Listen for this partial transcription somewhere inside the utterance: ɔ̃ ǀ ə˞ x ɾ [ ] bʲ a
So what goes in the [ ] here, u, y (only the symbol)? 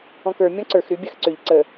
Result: y